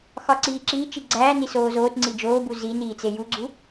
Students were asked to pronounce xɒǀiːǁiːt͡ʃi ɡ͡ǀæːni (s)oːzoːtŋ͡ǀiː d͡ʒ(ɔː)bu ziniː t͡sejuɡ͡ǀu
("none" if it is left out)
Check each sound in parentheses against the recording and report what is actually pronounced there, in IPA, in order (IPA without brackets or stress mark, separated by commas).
s, oː